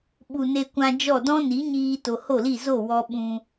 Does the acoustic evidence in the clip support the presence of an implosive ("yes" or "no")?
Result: yes